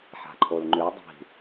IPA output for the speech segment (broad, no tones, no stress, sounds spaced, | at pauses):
ħ a̤ ǃʰ o l ŋ͡ǃ ʉ dˤ i̤